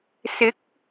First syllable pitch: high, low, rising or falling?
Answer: rising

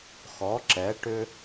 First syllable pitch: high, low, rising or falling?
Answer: rising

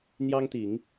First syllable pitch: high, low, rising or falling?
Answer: high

